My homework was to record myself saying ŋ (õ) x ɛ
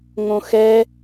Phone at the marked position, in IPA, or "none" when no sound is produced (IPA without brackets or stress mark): õ